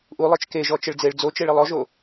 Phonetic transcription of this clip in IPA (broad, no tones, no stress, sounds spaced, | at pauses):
ʔ u lˠ e t͡ʃ k e ʒ ɔ t͡ʃ ɘ ɭ d͡z e ɭ d͡z o t͡ʃ e ɭ i lˠ ɔ ʒ o